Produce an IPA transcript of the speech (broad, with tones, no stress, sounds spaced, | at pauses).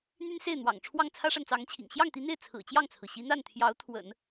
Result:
n̪ y˥ n s e˥˩ ɪ̯ n̪ w ɑ̰˨˩ ŋ ʈ͡ʂʰ w ɑ˥˩ ŋ t͡sʰ ä˥ ʂ a˨ n t͡s ɑ˧˥ ŋ t͡ɕʰ ḭ˨˩ ŋ ɕ j ɑ˥˩ ŋ t̪ i˧˥ n̪ e˥˩ ɪ̯ t͡sʰ ɹ̩˨˩ t͡ɕ j ɑ˥˩ ŋ t͡sʰ ɹ̩˩ ɕ i˧˥ n̪ a˥˩ n t̪ʰ j ɑ˧˥ ʊ̯ t̪ʰ w ə̰˨˩˦ n